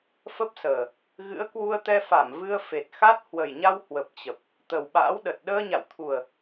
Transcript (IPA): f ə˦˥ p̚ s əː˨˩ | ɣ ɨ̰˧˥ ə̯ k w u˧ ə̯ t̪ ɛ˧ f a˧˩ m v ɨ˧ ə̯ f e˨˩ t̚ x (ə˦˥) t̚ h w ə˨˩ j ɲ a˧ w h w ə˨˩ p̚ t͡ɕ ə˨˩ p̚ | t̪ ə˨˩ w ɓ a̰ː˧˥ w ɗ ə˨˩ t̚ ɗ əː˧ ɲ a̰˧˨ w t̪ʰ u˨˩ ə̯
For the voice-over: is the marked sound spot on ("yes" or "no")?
no